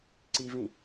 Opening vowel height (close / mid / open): close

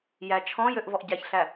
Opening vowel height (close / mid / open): open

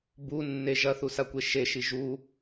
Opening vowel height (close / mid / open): close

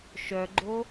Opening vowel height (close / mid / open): mid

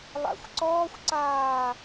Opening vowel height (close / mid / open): open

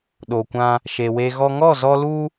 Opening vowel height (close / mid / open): mid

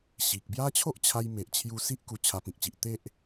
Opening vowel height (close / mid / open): close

